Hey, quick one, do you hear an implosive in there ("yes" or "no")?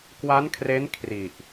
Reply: no